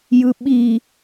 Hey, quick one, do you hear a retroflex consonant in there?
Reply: no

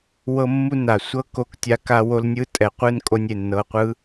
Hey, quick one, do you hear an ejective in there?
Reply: yes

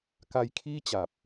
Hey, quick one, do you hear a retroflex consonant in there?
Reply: no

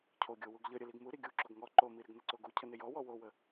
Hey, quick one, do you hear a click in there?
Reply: yes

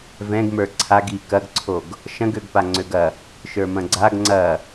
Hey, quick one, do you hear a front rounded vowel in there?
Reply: yes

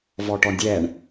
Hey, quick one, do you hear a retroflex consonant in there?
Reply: yes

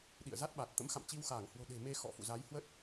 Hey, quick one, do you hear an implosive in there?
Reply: yes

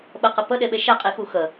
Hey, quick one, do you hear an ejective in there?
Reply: yes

